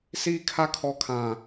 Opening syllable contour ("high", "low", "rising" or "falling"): high